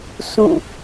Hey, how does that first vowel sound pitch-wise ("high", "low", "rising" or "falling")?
falling